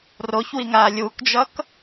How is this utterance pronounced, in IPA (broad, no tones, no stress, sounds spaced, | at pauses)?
r o ç w i ŋ aː lʲ u k d͡ʒ ʌ k